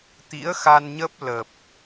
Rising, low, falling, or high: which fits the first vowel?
rising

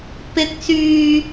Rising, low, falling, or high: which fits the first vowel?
rising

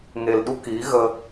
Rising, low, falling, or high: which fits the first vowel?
low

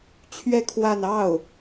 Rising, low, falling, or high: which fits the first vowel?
falling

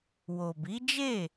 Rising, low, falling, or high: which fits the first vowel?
low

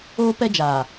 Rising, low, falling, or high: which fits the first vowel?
high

